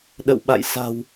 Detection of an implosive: present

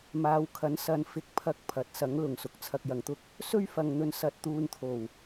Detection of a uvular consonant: absent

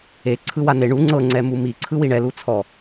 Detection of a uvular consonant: absent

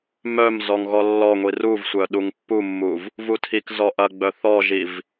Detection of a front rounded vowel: present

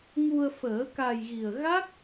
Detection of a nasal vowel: absent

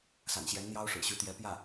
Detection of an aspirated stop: absent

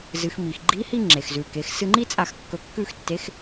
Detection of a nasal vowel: absent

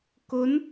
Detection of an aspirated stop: absent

